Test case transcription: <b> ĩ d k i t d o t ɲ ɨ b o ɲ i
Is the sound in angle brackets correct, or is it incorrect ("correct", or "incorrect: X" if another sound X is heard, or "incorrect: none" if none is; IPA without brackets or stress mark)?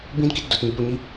correct